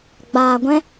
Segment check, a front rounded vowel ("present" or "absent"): absent